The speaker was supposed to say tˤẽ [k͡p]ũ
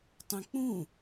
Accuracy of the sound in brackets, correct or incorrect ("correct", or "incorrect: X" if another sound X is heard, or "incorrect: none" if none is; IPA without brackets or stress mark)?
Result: correct